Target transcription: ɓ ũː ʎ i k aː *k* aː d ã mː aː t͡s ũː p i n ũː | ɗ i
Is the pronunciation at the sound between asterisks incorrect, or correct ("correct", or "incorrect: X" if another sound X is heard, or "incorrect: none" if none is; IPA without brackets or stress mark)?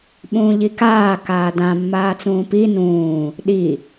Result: correct